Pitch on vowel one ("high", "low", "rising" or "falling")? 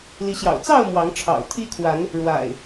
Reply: rising